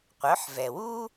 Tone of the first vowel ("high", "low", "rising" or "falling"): rising